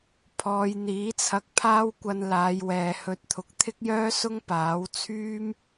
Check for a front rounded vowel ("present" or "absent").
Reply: present